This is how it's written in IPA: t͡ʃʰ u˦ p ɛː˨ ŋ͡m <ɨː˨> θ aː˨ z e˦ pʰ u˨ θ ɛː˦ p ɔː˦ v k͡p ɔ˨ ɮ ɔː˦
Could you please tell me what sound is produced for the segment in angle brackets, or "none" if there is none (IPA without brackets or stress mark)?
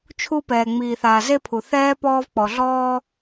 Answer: iː˨